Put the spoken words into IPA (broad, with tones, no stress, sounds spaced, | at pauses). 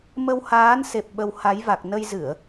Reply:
m ə˧ w h aː˨˦ n s e˨˩ p̚ ɓ ə˧ w h a˨˦ j v a˨˩ k̚ n ə˧ j z ɨ˧˩˨ ə̯